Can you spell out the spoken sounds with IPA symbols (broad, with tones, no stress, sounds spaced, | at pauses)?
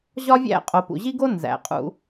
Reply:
ʑ ɒ˦ vʲ æ̰˦˨ qʼ o˨ p ṵ˨ ʑ i˦ ɡ o˦ n z æ̰˨ qʼ ṵ˧